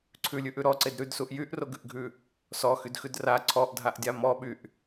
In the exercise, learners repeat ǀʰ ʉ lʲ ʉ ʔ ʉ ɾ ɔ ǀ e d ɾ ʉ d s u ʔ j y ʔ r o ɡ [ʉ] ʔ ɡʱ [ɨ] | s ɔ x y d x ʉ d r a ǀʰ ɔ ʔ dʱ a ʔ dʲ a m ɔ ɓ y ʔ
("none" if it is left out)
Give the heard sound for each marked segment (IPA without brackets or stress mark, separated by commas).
ʉ, ʉ